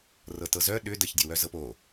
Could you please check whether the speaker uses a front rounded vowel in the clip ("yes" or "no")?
yes